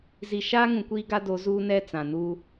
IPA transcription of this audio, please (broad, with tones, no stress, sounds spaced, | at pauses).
z i˨ ʃ aː˦ ŋ ũ˨ kʷ iː˦ ɡ a˦ d o˨˦ z uː˦ n ɛ˦ t͡s ã˨ n uː˦